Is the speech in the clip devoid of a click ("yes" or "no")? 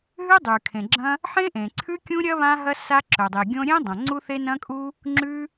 no